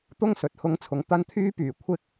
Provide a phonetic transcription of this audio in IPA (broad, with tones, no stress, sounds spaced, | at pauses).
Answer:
t̪ ʊ˥ ŋ s ɵ˨ t̚ h ʊ˥ ŋ t͡sʰ ʊ˨ ŋ t̪ ɐ˥ n t̪ʰ yː˥ p yː˨˩ kʷʰ ɪ˥ k̚